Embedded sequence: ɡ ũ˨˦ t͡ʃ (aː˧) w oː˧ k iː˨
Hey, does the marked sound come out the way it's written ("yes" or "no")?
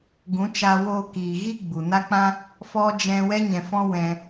yes